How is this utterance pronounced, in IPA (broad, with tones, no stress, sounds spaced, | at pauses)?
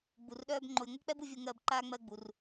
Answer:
ɡ͡b u˨ r ɗ œː˥ b ŋ͡ǃ o˨ j ŋʷ œ˥ k͡p ɛ˥ b u˦ vʲ o˦ ŋ ɜː˦ b ǃ aː˥ ŋ͡m ɜ˦ ɡ͡b u˨ r